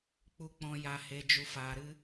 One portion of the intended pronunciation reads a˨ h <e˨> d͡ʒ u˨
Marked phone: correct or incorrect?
correct